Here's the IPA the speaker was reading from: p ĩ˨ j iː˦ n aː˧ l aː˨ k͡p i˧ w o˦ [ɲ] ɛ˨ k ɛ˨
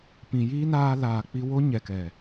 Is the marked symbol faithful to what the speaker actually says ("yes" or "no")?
yes